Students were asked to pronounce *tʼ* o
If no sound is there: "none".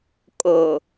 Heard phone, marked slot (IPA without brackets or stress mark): kʼ